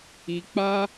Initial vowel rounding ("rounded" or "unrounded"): unrounded